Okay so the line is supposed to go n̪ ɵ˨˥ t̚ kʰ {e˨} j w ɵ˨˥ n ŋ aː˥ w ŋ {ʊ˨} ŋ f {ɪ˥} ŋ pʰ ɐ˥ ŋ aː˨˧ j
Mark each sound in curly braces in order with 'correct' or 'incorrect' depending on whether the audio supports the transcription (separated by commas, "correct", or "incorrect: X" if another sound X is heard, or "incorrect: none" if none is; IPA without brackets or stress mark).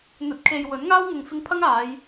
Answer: correct, correct, incorrect: ɪ˧